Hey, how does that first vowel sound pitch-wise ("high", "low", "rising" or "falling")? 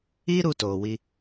high